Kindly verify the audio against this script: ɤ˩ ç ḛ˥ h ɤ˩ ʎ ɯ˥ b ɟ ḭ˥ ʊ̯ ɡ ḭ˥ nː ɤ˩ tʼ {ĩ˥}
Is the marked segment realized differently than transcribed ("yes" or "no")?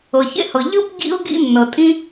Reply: no